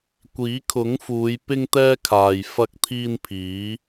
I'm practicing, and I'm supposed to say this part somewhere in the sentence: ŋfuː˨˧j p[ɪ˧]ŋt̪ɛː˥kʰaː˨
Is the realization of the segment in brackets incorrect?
yes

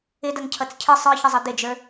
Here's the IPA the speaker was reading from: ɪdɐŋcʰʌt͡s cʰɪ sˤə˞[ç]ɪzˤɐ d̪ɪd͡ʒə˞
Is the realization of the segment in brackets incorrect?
no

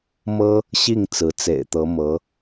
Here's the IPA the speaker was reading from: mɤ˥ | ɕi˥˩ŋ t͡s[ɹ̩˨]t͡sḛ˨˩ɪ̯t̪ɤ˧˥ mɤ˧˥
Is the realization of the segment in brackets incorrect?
yes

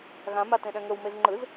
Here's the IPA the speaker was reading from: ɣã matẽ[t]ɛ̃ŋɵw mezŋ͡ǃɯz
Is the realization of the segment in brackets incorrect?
yes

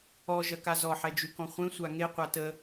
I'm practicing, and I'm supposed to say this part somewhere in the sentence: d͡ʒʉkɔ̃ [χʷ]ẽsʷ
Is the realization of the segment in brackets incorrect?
no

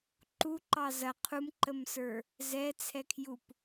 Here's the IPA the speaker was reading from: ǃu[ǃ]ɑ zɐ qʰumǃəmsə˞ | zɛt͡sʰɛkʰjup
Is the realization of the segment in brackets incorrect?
no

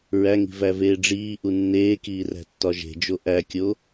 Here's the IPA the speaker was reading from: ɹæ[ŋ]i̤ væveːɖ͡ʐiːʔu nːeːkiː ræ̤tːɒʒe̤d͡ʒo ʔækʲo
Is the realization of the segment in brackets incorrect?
no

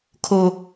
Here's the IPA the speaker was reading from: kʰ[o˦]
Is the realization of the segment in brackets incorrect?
no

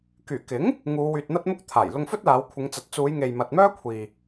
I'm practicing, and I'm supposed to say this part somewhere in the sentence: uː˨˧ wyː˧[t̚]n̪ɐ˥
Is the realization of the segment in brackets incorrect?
no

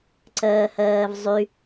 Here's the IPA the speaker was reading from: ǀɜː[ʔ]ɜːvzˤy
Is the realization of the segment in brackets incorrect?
yes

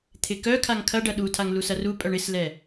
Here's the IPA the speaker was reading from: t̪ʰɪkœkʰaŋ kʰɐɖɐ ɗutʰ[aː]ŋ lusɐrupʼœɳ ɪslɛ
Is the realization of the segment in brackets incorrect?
yes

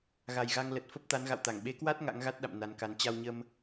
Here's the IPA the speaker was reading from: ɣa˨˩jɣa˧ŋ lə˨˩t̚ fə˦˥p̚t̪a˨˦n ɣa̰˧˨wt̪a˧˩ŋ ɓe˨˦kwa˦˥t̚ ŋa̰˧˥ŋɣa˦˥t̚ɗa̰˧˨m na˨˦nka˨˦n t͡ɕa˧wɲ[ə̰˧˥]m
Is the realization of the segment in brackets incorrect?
yes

